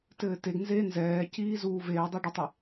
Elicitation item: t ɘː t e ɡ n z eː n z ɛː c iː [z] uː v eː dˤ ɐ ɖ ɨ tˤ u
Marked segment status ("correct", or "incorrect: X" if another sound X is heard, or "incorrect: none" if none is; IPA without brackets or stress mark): correct